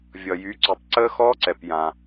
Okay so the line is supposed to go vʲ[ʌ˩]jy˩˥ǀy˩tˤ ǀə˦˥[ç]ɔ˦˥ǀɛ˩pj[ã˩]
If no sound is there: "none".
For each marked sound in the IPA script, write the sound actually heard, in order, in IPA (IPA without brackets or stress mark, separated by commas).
ʌ˩, x, ã˩